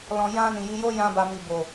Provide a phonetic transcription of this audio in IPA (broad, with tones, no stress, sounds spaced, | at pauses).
l ɔ̃˨ j ã˧ n ĩ˨ j i˧ j o˦ j ã˧ b a˨ m i˨ b o˨